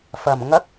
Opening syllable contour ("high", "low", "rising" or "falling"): low